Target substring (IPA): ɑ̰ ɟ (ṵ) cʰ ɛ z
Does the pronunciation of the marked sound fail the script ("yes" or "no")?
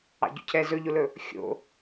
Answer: yes